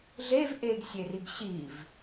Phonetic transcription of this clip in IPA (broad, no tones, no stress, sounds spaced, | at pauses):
ɮ e v ʔ e ɡ sʲ e r i ɡ ɕ i v